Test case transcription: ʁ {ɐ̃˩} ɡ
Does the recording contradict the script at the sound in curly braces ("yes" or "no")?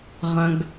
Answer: no